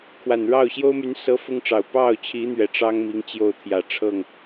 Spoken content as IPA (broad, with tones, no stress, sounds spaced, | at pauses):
kʰ w a˨˩ n ɻ ɑ˥˩ ʊ̯ ɕ j o˥ ʊ̯ m y˧˥ n s ɤ˧˥ f ʊ˥ ŋ ʈ͡ʂ ɑ˨˩ ʊ̯ p ɑ˥˩ ʊ̯ t͡ɕʰ i˧˥ n̪ ɥ ɛ˨˩ ʈ͡ʂ ɑ˥ ŋ m i˧˥ ŋ t͡ɕ j o˥˩ ʊ̯ t̪ʰ j ä˨˩ ʈ͡ʂʰ ɤ˥˩ ŋ